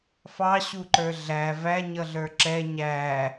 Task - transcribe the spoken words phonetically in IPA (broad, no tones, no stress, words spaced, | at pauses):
fɑ ɕuǃə˞ɮæ væ ɲʌɮə˞ǁɛ ɲæ